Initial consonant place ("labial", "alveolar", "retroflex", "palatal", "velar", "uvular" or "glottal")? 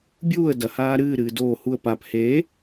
labial